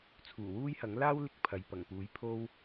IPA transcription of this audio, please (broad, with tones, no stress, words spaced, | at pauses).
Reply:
t͡sʰuː˨˩wuː˥jhɐ˨˥ŋ laː˥wlɪ˧k̚ pʰɐ˨jpɐ˨˩ŋpuː˨˥j pʰo˥w